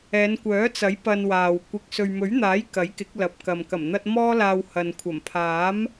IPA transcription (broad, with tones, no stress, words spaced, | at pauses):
ɛː˨˧nkʷœː˨˥t͡sɐ˨˥j pɐ˧nwaː˨w kʷɪ˧k̚ sɵ˨ɥmɵ˨˥ɥn̪aː˨˥j kɐ˨˥jkɪ˨˥k̚lɐ˨p̚ kɐ˨m kɐ˨˩mn̪ɐ˧t̚ mɔː˥laː˧whɐ˨n kʷʰɐ˨˩mpʰaː˨˥m